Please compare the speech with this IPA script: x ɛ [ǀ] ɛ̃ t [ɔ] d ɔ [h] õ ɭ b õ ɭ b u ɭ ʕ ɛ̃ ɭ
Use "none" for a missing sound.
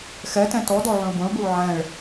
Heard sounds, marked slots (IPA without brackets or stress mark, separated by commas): t, ɔ, ʕ